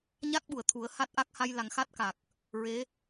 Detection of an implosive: present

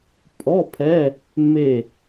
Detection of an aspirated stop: present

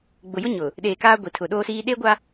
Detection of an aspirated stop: present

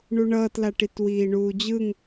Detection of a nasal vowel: absent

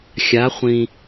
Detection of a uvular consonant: present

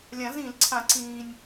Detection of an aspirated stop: present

